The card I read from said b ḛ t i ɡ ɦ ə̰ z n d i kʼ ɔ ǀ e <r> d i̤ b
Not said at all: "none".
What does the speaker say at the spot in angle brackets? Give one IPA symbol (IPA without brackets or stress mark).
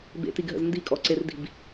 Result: r